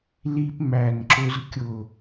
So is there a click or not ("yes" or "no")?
yes